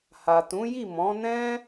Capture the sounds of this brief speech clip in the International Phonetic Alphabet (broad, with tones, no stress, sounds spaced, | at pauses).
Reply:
h a˨ t ũ˨˦ j i˦˨ m ɔ̃˨˦ n ɛ̃˦